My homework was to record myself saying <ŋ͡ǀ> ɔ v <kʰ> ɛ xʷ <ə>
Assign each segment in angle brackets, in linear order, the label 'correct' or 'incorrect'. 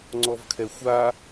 correct, correct, incorrect: a

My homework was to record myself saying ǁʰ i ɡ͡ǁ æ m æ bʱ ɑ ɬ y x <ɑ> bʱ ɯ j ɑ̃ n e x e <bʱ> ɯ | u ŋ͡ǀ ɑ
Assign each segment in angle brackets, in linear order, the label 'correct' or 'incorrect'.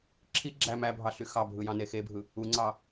correct, correct

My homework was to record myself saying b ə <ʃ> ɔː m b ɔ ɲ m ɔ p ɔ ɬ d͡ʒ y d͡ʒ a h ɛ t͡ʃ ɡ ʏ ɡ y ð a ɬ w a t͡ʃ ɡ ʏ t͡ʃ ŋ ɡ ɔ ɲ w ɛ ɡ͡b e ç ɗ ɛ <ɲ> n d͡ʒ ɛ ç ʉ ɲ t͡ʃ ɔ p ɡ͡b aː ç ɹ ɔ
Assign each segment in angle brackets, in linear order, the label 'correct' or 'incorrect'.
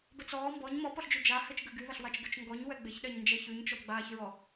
incorrect: t͡s, correct

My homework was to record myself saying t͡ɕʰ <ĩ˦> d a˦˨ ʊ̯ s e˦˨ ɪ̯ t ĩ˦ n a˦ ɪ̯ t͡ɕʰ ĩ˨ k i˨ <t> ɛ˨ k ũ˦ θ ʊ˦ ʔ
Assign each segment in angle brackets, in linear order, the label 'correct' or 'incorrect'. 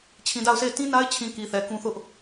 incorrect: ĩ˨, incorrect: θ

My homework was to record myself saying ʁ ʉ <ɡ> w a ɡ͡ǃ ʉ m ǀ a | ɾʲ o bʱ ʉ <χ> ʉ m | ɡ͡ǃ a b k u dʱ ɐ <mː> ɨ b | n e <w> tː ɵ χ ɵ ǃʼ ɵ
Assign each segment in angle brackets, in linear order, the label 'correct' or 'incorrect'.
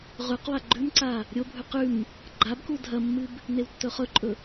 incorrect: q, incorrect: q, correct, correct

